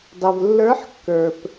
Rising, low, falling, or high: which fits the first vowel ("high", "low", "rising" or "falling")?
low